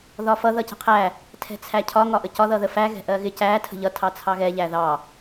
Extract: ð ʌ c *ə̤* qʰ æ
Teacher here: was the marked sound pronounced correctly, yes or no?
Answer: yes